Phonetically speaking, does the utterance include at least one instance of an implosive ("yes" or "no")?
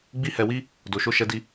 no